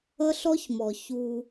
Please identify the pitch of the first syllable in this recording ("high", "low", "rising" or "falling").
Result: high